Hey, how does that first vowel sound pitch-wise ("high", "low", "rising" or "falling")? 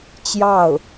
falling